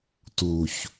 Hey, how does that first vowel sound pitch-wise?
low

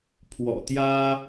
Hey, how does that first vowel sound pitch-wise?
low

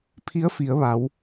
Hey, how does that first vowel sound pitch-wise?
rising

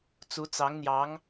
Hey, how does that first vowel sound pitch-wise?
rising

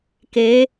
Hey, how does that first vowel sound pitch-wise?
rising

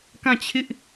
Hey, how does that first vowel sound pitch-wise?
falling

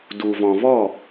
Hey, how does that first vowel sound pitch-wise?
low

